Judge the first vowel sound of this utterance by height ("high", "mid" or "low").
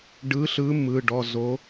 high